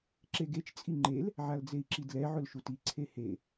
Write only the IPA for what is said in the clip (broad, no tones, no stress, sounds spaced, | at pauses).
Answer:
ǁ e ɡ e t͡ʃ t͡sʼ i ŋ͡ǃ e l | ʕ a l d͡z e i̯ ǁ i d l ɛ ʕ ʊ l ʃ u t i ǀʰ e h e